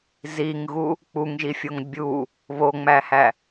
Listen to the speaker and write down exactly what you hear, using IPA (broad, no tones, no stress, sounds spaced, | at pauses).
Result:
z i ŋ ɣ u | k͡p u ŋ ʒ i fʲ o ŋ bʲ u | β o ŋ͡m æ h æ